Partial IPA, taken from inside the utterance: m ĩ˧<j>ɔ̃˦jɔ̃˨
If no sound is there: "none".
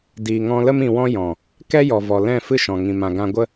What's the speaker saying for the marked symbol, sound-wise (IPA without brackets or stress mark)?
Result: w